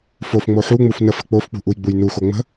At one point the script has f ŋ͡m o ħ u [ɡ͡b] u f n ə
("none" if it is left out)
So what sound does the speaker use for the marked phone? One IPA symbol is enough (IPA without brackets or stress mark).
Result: ŋ͡m